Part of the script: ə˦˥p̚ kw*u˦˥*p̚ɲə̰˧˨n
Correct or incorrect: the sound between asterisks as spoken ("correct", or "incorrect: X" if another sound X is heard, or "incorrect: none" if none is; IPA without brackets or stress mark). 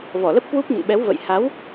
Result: correct